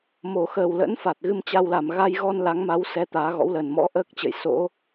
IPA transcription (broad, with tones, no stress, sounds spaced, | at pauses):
m o˨˩ x əː˨˩ w l ə̰˧˥ n f a˨˩ t̚ ɣ ɨ˧ m t͡ɕ a˧ w l a˨˩ m ɣ a˧ j ɣ ɔ˧ n l a˨˦ ŋ m a˨˦ w s ɛ˧ t̪ aː˨˦ ɣ ɔ̰˧˥ w l əː˨˩ n m ɔ̰˧˥ ʔ əː˦˥ k̚ t͡ɕ ə̰˧˨ j s o̰˧˥